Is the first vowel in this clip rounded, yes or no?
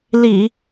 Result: no